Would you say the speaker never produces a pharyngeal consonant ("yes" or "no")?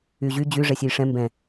yes